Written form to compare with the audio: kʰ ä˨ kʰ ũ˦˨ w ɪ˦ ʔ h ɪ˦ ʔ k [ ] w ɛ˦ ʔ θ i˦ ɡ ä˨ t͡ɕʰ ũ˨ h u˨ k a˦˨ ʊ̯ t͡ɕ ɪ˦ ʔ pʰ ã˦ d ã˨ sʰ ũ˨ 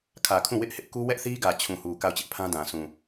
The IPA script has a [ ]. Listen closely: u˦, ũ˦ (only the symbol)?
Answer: u˦